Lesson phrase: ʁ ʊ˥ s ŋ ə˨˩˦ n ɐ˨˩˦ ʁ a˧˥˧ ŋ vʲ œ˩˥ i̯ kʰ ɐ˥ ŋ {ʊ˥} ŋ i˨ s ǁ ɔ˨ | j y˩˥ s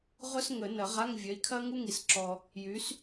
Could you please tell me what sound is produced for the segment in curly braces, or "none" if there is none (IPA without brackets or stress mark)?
u˥